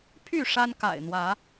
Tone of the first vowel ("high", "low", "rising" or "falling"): falling